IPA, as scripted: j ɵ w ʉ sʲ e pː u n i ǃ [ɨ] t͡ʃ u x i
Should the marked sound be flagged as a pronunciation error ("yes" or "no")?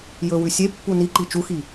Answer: yes